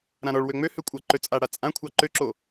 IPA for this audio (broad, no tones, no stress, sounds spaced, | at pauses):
ɾ ã ɾ ɔ ɭ w ø ŋ͡m ø h ø kʷʼ ʌ ǃ ø t͡sʼ a ɽ a t͡sʼ ã kʷʰ ɑ ǃ ø ǁ o